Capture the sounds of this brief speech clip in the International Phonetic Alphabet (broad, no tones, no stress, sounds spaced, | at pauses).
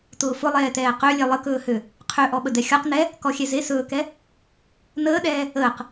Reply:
t ʊː f ʊ lˠ ɛː t ɛː q ø lʲ ɛ lˠ ə k ɵː h ø | qʰ ø ʔ ɔ ɓ ə d ɛ xʲ ɔ q n ɛ | k ɔ xʲ ɛ z e s ɵː k ɛ | n əː ɗ ɛː | əː q